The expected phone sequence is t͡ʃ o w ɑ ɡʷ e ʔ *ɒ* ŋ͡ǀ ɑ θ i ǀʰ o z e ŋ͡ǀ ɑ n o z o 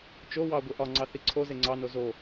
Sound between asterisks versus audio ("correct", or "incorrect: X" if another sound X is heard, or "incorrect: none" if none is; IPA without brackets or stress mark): correct